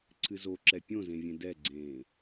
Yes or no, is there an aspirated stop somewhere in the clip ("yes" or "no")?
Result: yes